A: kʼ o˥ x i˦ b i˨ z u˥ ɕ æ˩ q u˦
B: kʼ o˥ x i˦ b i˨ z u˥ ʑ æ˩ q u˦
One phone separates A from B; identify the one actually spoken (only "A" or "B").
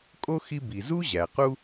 B